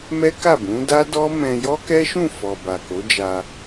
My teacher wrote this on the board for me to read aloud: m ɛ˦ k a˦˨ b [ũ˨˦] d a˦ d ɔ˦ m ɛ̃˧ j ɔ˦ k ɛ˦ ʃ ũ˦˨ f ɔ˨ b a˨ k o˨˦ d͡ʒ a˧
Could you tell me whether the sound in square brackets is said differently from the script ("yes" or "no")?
no